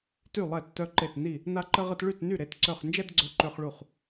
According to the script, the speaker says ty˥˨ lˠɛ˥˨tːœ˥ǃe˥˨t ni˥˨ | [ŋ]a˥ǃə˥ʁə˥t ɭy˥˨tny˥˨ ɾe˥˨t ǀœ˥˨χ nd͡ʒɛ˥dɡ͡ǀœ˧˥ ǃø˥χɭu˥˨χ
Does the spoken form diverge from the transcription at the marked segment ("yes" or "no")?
yes